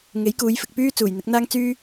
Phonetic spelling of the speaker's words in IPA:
ŋ e˨˥ j k uː˨˧ j f ɪ˨ k̚ p yː˥ t͡s uː˨˩ j n̪ ɪ˨˥ k̚ n̪ aː˥ ŋ t͡s yː˥

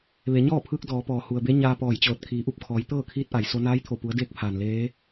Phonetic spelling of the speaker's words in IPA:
ʋ e˩˧ ɲ ɔː˥˨ pʰ ɯː˧ k̚ d ɔː˩˧ p ɔː˩ h u˩ ə̯ b e˧˥ ɲ aː˧ p ɔː˧˩ j t͡ɕ ɤː˧˩ t̚ kʰ iː˩˧ ʔ u˧˩ p̚ kʰ ɔː˩˧ j t̪ ɤː˥˨ kʰ iː˧˥ t̚ ʔ a˩ j s o˧ n aː˧˥ j t̪ʰ o˧˩ p u˩˧ ə̯ d eː˧˥ k̚ pʰ aː˩ n l eː˧˥

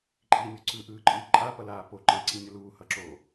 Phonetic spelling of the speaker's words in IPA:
ǃʼ i nʲ u ǀ ɯ ʔ ɯː ǃʼ ɯː ǃʼ a p ʌ l aː p o ǃ e ǀ i nʲ ʌ l uː h ʌ ǁ o

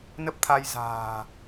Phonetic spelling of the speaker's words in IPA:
n ə˦˥ p̚ t̪ʰ a˧ j z a̤ː˨˩

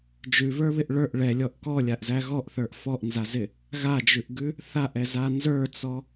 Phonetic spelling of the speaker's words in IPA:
d͡ʒ ʉ v ə˞ β ɪ ʔ ɭ ə˞ ʔ ɭ ɛ lʲ ɔ ʔ k ɔ lʲ a ʔ z æ ɣ ɔ ʔ θ ə˞ ʔ f ɔ ʔ n z a z ɪ | ɣ a d͡ʒ ʉ ʔ ɡ ʉ | θ a ʔ ɛ z a n z ə˞ t͡s ɔ

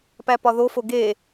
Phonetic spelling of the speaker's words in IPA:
p æ p ɒ ð o f o ɡ e

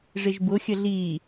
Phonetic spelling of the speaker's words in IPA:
ʐ ɪ ʒ b ʊ xʲ ə ɮ i

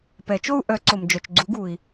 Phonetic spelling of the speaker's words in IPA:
p ɛ˨˩˦ t͡ʃ o˥˧ u̯ ʔ œ˨˥ ǀ o˨ m d͡ʒ œ˨ t͡ʃ ɡ͡ǀ u˨˥ ɡ u˨ i̯

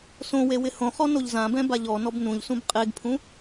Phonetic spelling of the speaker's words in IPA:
s õ w e w ɪ h õ χ ɔ n o ʎ z ã b ɛ̃ b a ʎ ɔ n ɔ b n ũ ʎ s ũ b qʼ e ɡ pʰ ũ

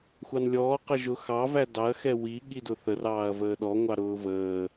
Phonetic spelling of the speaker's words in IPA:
xʷ ɑ n lʲ ɔː q ə ʒ ʊ x ɑ v æ d ɑ ɐ̯ x ɛ w i ɠ i d ʊ θ ə r ɑː ɐ̯ v əː ɗ ɔ ŋʷ ɑ ɾ ʊː v əː

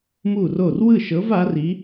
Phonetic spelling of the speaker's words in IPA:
m u˥˩ r o˥˩ r w ɯ˥˩ ʃ ɤ˨˥ v a˨˥ r i˨˥

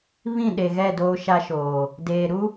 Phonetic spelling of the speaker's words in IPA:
β ĩ˦˨ ɗ e˨ ɣ ɛ˦˨ d oː˦ ʃ a˦ ʃ oː˨ | d eː˨ ɾ u˦

